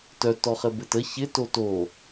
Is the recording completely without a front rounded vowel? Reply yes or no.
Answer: no